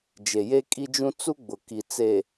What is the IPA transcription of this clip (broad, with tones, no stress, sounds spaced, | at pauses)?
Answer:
d͡ʒ e˨ j e˦ kʼ i˦ d͡ʒ ũ˦ t͡s u˦ ɡ͡b ʊ˨ k i˨ t͡s e˨